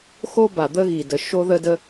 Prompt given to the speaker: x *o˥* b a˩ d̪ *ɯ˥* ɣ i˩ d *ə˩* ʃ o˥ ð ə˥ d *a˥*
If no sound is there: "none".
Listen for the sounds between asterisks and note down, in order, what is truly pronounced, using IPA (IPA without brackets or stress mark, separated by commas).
o˥, ə˥, ə˩, ə˥